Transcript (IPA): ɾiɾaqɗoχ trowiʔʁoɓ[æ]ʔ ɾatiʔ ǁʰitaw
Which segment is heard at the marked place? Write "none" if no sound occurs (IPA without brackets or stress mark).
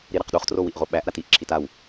æ